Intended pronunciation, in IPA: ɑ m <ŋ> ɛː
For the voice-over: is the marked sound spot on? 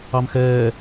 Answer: no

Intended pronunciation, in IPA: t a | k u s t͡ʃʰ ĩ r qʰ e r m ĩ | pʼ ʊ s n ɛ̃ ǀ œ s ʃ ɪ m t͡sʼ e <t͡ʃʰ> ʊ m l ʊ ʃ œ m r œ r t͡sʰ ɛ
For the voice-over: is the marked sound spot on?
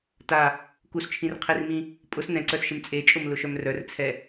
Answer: no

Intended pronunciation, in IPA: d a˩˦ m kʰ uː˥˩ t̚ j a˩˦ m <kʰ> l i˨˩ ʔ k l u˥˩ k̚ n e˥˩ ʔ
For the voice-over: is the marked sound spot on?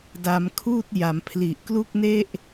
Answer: no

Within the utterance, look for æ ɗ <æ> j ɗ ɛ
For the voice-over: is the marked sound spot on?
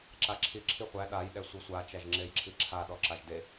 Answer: no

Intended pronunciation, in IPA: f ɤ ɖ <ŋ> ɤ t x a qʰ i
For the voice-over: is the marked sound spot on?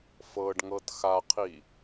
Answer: yes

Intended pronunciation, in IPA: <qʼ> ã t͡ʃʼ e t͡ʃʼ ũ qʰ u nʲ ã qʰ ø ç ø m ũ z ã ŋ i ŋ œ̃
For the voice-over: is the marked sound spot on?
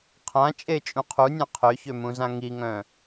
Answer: no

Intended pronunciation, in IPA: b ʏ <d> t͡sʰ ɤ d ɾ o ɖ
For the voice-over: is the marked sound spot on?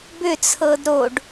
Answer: no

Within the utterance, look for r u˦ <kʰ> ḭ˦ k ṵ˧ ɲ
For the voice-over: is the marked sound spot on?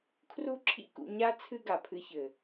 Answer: no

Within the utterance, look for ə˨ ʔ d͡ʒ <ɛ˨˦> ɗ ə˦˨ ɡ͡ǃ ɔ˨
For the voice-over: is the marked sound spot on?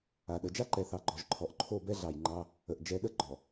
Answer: yes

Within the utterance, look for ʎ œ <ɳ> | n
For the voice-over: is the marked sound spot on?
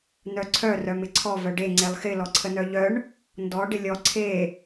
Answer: yes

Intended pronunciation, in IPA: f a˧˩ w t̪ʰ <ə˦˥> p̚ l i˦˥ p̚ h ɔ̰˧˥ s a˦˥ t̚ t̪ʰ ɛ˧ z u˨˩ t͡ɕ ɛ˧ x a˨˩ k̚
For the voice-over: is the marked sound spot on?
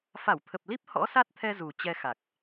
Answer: no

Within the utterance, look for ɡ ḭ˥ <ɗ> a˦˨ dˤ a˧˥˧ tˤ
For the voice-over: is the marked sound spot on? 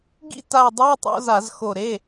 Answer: no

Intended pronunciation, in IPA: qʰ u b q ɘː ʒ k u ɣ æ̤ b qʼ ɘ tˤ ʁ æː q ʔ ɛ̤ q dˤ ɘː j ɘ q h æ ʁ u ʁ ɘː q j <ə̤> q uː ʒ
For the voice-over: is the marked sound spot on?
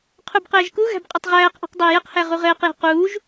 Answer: no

